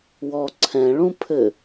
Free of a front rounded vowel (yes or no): yes